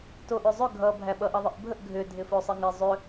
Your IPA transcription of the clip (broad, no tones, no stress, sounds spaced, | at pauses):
t o ʔ ʏ zˤ ʏ ɡʱ ʌ bʱ æ ɓ ʌ ʔ ʌ ðˤ ɪ ʔ bʱ ə ʔ ɡʱ ʏ dʱ ɪ f o sˤ ɪ ŋ ɪ zˤ ʏ